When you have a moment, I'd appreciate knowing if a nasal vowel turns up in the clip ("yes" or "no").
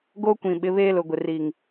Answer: yes